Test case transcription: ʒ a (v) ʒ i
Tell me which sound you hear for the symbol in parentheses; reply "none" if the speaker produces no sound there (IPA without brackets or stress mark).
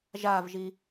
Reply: v